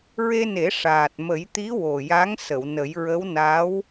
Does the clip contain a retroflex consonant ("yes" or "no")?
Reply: yes